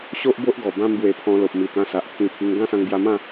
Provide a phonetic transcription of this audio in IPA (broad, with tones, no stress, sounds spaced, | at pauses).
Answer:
ɕ o˦ ʔ b o˦ ʔ ɡ ɔ˨˩ b ã˦ m b w e˧ pʰ ɔ̃˧ l o˨ p̚ m i˨˩ t̪ ã˧ s a˨ ʔ t̪ʰ ĩ˧ pʰ i˧ ŋ ɡ ã˦ s ã˧ ŋ b j a˧ m ã˥˧